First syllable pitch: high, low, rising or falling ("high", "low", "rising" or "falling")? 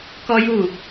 high